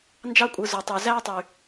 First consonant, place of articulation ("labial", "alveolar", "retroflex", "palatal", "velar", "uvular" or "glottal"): alveolar